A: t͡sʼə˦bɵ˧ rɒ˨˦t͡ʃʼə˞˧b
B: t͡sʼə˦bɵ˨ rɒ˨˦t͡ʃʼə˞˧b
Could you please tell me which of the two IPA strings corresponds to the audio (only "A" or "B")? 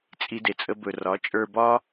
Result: A